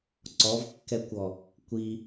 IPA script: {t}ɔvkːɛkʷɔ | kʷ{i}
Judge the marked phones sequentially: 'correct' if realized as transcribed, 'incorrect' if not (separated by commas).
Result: incorrect, correct